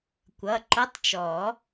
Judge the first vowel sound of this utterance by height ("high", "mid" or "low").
mid